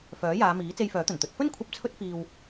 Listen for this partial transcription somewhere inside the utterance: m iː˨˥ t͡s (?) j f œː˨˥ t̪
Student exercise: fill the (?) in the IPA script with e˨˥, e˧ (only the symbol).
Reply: e˧